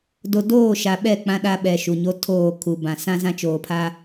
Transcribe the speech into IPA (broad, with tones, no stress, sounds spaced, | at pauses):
d o˨ d oː˦˨ ʃ a˨ ɓ ɛ˦˨ k͡p ã˦ ɗ a˦ ɓ ɛ˨ ʃ u˨ ɲ o˦ tʰ oː˦˨ kʰ u˨ b ã˨ s ã˦ z ã˦ t͡ʃ oː˨ pʰ a˦